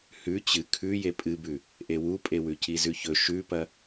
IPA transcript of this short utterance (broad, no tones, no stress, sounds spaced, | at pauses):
h ʉ t͡ɕ ɨ kʰ ʉ j e pʼ ɨ b ʉ | ʔ e w u pʼ e w ʉ c i z ʉ ç ɵ ʃ ʉ p ɐ